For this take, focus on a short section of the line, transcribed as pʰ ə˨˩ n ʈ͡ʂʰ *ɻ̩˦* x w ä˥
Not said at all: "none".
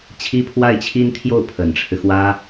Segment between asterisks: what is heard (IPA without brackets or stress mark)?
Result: ɻ̩˦